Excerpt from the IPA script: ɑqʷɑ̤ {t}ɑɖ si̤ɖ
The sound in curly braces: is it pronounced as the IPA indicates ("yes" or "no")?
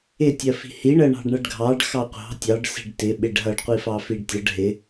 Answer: no